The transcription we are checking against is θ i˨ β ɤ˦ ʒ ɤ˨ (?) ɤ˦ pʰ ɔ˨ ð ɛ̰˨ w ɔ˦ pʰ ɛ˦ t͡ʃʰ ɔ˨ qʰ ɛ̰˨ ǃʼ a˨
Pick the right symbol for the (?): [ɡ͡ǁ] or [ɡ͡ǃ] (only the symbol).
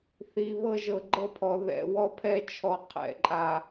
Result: ɡ͡ǃ